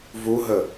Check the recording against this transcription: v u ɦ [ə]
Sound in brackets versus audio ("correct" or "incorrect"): correct